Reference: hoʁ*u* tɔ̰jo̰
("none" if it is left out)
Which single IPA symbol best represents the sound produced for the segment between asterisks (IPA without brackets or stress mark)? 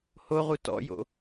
u